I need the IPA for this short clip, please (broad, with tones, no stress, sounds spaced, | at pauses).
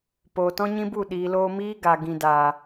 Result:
p oː˨ t ɔ̃˦ ɲ ĩ˦ b u˦˨ ɗ iː˨ l oː˧ m iː˦ ɡ a˨ ɡ ĩ˨ d aː˨